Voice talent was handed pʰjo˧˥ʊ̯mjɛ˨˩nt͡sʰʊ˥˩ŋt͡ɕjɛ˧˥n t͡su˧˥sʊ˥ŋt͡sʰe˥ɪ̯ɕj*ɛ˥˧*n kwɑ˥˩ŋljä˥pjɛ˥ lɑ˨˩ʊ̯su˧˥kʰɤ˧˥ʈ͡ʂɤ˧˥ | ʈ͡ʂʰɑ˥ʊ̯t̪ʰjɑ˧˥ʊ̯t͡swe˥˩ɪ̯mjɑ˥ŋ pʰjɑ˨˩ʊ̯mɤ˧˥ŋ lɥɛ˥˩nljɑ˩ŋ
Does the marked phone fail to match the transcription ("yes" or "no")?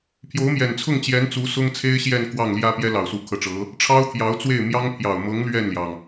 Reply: no